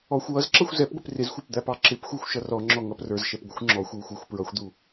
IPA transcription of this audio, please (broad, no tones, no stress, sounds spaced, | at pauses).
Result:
ɔ xʷ w ʌ z ǁ ʌ xʷ z ɛ p ɡʷ ɪ p r ɪ z xʷ ə˞ p d̪ æ p ɑ ǁ ɪ p xʷ æ xʷ ʃ ʌ r ɔ ŋ͡ǁ ɔ ŋ ʌ p r ə˞ z ʃ ɛ p ɡʷ ɪ xʷ ŋ͡ǁ ɔ xʷ w u xʷ ə˞ xʷ p ɹ ʌ xʷ d̪ u